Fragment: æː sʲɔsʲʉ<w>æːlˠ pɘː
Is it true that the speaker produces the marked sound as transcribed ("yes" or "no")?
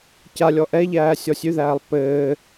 no